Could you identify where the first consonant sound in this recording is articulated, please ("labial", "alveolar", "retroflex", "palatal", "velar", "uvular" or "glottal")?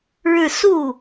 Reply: retroflex